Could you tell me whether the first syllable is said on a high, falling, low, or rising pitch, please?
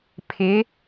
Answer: rising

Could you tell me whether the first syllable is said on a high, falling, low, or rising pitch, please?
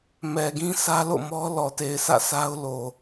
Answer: low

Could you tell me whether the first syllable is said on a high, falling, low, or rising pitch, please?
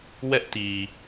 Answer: high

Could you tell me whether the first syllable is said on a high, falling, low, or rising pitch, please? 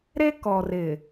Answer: high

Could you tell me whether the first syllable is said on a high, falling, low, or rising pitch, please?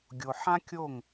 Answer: low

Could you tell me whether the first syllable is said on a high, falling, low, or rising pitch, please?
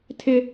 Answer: high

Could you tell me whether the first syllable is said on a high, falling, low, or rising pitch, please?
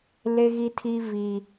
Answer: high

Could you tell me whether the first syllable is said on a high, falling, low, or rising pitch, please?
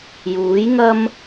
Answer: rising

